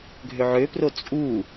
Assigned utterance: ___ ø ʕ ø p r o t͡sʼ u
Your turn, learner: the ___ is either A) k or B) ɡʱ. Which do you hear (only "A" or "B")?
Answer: B